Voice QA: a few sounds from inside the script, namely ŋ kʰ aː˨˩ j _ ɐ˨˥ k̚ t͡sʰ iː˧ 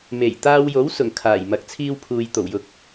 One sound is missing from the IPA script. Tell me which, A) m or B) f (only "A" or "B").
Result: A